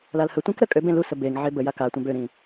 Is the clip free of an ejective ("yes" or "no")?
no